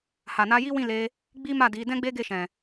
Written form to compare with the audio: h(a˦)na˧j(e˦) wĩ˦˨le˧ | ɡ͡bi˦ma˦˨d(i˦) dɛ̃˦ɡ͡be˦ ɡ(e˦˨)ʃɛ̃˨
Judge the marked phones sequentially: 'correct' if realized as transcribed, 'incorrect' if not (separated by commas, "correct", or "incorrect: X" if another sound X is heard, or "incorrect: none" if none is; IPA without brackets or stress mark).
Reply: incorrect: a˨, incorrect: i˦, incorrect: i˨˦, correct